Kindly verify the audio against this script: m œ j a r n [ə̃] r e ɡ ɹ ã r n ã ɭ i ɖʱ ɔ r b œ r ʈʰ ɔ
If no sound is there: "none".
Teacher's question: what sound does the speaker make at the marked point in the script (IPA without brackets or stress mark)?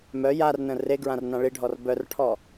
ə̃